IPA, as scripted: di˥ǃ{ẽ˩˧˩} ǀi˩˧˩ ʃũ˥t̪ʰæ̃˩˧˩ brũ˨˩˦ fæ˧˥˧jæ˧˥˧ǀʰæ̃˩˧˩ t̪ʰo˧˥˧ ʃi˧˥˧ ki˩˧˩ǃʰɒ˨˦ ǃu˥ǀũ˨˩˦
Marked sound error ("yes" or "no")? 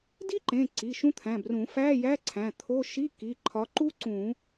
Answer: no